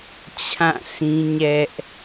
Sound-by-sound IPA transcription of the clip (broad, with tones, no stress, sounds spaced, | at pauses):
t͡ɕʰ ã˦˨ sʰ ĩ˦ ɲ ɛ˦ ʔ